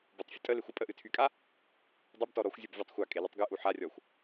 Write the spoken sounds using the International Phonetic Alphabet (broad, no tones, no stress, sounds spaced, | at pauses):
b ʊ tˤ fʲ ə tʼ ə l e xʷ ə pʼ ə ʔ ɨ tʰ y kʼ a | dˤ ʊ b t ɔ ɾ ɔ xʷ zʲ ʊ b vʲ a tˤ xʷ a kʼ e l ʊ tˤ ɡ ɨ ʔ u ħ a rʲ ɔ xʷ